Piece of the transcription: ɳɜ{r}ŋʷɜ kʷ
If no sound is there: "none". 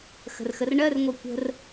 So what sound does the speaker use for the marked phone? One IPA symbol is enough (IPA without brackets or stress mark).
r